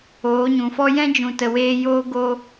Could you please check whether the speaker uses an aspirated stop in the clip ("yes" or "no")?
no